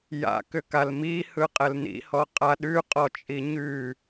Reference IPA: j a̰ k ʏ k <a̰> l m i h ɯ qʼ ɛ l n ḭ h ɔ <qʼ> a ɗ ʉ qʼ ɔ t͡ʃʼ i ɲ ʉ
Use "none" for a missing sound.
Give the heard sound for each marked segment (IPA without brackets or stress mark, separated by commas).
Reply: a, qʼ